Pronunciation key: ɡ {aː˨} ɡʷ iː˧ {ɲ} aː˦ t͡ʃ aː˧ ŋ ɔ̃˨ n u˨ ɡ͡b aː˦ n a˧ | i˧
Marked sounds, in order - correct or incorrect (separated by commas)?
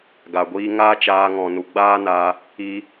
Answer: incorrect, incorrect